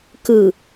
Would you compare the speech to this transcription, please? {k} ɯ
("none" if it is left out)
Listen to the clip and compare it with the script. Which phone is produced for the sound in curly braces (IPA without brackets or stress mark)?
k